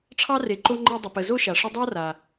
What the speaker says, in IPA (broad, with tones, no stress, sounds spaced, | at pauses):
ʈ͡ʂʰ ɑ˥ r e˨ ǃ o˦ ŋ͡ǃ e˦ dˤ ə˨ p ə˨ z o˥ ʃ a˩ ʂ ə˦ dˤ a˥ r a˩